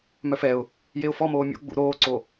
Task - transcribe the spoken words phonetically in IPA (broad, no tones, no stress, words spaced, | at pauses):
mœfɛʊ̯ | jeʊ̯fɔmoː mʲo̰ ɡ͡bṵ ɾoːǀo